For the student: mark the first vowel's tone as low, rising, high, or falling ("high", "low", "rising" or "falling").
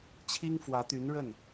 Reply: high